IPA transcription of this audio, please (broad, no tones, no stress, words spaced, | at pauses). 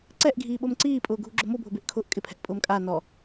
ǀɛʔɡʱiːɓom ǀiːpʼʊːɡʱuɡ͡ǁo mobʱʊbeʔkʰʊːʔ kʼɪpʰɛ̤ʔpʼʊːm kʼa nɔ